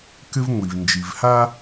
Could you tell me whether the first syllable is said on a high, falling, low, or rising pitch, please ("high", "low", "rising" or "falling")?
high